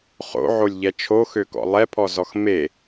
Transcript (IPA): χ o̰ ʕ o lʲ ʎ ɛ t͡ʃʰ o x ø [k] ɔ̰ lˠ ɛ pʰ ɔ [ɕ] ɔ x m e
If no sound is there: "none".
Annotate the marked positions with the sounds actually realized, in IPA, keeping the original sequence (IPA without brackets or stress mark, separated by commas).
k, z